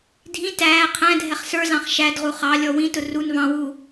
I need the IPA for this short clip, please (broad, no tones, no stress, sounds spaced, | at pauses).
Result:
dʱ ĩ t æː qʰ æ̃ dʱ ɛ χ s ə˞ z ɑ̃ χ ʃ æ d ʁ u χ ɑ lʲ ɔ w ĩ t ʊ r u n v ɑ̃ w uː